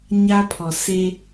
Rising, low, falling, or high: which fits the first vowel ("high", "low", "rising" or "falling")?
high